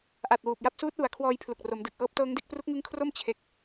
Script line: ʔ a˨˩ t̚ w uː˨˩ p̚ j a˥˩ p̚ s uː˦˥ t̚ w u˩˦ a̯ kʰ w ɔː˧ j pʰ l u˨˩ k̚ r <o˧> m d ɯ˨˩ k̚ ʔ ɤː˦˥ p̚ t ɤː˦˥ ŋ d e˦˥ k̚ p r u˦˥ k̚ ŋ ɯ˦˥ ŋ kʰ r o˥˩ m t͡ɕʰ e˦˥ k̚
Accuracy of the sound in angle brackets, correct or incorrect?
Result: incorrect: o˩˦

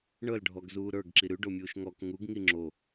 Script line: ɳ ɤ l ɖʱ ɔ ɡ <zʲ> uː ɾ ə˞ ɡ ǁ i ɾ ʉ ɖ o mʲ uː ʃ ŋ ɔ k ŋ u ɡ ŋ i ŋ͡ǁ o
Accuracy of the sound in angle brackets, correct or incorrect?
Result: incorrect: z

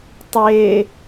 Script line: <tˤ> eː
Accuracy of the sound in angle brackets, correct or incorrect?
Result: correct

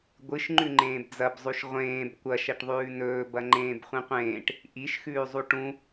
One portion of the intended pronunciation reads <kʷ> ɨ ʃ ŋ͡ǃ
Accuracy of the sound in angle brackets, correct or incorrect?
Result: incorrect: ɡʷ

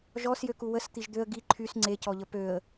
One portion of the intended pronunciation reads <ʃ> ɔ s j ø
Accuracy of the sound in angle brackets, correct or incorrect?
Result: incorrect: ʒ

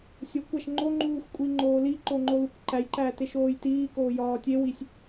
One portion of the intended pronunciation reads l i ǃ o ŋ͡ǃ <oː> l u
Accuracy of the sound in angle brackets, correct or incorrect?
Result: incorrect: o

